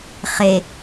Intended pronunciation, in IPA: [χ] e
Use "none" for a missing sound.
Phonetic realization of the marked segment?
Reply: χ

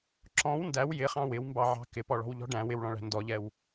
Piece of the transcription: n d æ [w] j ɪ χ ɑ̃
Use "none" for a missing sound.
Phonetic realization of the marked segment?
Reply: w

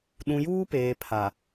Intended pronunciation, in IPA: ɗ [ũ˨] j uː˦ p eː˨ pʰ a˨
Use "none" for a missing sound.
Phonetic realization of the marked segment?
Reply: ũ˨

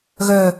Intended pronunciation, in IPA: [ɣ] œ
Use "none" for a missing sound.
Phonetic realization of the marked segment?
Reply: ɣ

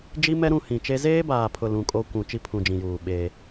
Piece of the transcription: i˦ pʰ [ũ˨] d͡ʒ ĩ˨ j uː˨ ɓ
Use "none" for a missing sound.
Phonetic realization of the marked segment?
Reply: ũ˨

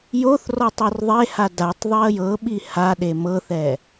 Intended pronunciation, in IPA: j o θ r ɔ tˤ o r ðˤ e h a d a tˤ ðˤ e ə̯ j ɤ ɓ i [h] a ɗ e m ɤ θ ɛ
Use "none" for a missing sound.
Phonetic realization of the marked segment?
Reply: h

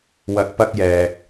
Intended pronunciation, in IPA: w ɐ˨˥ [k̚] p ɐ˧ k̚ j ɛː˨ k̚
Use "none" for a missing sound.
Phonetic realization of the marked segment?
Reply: k̚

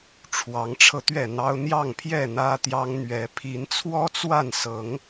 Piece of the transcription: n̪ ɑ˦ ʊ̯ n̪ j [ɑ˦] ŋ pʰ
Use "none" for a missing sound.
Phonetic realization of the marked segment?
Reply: ɑ˥˨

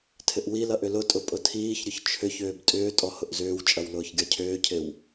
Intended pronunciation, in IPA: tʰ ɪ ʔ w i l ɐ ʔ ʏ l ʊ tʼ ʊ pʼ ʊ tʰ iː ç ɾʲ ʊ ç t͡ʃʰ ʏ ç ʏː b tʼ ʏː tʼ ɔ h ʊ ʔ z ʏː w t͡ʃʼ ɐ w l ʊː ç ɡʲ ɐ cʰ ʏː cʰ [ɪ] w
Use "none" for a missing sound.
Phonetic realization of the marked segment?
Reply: ɪ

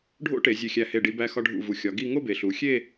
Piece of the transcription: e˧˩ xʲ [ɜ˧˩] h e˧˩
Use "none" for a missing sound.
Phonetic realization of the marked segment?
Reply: æ˧˩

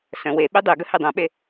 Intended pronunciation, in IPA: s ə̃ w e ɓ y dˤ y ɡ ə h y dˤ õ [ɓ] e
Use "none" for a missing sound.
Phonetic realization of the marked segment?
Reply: ɓ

